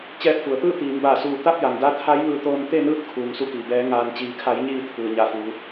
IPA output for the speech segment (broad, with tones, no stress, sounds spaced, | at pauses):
t͡ɕ ɛː˧ p̚ f u˩ ə̯ t̪ ɯː˥˨ t̪ iː˩˧ m b aː˧˩ s uː˧˩ t̪ a˥˨ p̚ j a˩ ŋ d a˧˥ t̪ʰ a˧˥ j ʋ ɯː˧ t̪ oː˧ n t̪ e˥˨ n ɯː˧˥ t̚ kʰ uː˩ ŋ s u˧ k iː˩ b ɛː˩˧ ŋ aː˩ n t͡ɕ iː˩ kʰ a˩˧ j ɲ iː˧˩ t̪ʰ ɯː˩ ɲ a˧˩ f uː˩˧